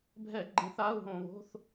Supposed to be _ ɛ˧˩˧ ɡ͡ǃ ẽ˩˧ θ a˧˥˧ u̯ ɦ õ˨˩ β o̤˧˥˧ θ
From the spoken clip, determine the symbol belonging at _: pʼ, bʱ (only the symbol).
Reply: bʱ